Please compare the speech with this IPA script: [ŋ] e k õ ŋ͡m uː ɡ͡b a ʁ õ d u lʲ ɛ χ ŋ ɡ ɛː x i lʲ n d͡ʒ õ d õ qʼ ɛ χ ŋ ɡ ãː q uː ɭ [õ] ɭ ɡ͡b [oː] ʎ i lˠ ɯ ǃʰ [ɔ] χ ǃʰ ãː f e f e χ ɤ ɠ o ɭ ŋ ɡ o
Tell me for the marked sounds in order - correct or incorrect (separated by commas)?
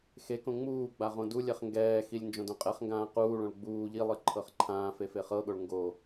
incorrect, correct, incorrect, incorrect